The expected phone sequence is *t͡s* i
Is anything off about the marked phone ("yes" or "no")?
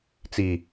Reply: no